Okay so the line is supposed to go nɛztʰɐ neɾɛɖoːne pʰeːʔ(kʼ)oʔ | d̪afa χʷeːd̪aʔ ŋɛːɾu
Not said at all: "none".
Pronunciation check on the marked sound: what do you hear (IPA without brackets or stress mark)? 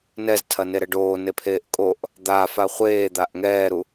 kʼ